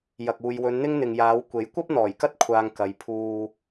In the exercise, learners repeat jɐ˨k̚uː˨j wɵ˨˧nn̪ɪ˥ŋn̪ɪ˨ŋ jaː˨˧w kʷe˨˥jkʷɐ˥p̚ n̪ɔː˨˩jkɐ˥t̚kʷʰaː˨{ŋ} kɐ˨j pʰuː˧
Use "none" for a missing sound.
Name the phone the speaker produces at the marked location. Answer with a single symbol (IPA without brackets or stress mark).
ŋ